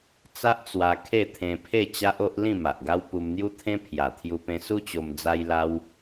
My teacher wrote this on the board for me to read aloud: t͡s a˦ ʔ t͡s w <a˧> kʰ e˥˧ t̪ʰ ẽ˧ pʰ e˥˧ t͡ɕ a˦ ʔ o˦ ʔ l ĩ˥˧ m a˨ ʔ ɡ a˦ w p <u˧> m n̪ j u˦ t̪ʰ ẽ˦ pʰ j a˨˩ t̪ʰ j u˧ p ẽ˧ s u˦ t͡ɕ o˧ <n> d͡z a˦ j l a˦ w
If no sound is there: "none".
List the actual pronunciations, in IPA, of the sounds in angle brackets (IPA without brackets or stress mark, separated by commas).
a˧, u˧, m